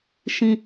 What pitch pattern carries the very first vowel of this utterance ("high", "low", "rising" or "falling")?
low